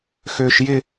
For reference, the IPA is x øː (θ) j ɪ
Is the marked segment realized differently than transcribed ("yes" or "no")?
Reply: yes